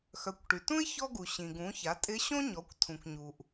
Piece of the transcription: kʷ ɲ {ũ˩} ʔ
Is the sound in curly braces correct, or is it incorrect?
incorrect